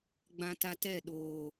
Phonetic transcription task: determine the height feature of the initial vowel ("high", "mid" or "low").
low